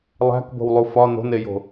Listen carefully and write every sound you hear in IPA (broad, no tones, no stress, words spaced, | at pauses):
lˠæ̤kbo̤wlˠu fɒ no̤nejo̤